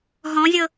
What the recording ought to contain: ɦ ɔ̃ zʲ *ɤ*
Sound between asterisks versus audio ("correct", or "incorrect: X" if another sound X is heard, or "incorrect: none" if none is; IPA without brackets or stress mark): correct